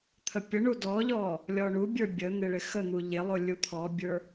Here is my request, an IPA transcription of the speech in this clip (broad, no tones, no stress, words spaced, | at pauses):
t̪ʰəpʲəɳu dɔʎɔ | lʲɔɳubʲə˞ bʲən̪ɪ ɭɪxən̪u ʎɪlˠo lʲut̪ʰɔbʲə˞